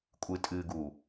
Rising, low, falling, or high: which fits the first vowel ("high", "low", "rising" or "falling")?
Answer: low